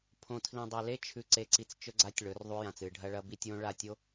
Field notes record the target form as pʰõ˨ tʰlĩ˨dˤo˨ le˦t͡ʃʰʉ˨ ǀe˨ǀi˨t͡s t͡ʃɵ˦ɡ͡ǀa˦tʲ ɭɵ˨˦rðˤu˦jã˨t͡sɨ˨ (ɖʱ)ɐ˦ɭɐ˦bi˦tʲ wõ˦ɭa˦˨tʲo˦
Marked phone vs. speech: correct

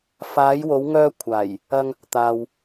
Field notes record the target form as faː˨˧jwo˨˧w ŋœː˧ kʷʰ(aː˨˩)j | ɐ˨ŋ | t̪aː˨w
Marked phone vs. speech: correct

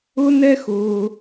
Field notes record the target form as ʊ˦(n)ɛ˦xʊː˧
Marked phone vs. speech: correct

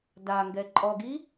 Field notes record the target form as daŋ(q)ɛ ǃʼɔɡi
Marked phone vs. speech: incorrect: ɡ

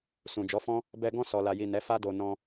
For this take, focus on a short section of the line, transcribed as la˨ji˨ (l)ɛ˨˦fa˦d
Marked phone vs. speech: incorrect: n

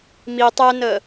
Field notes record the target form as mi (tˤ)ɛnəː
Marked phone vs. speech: correct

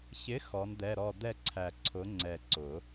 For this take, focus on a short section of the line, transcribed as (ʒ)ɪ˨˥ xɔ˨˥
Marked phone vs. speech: incorrect: ç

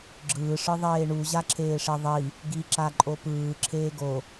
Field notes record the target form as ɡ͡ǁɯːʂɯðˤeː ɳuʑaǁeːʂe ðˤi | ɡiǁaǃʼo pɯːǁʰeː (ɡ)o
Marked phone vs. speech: correct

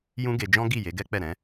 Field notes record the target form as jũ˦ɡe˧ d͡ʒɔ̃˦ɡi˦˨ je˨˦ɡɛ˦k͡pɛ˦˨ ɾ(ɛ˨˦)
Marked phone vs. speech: incorrect: ɛ̃˨˦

